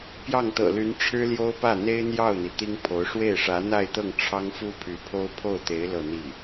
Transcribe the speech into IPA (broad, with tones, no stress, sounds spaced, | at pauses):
p j ɑ˥˩ ŋ t̪ ɤ̰˨˩ l y˧˥ n ʈ͡ʂʰ ɻ̩˥ l j o˥ ʊ̯ p ä˥˩ n̪ e˥ ɪ̯ n̪ j ɑ˥˩ ʊ̯ n̪ i˩ t̪ i˥ ŋ pʰ o˧˥ ʊ̯ ʂ w e˥˩ ɪ̯ ʂ ä˧˥ n̪ a˥˧ ɪ̯ t̪ ɤ˥˩ ŋ ʈ͡ʂʰ ɑ˥ ŋ f u˥ pʰ y˧˥ pʰ o˥ ʊ̯ pʰ o˥˩ ʊ̯ t̪ e˧˥ ɪ̯ l ɤ˥˧ n̪ i˥˩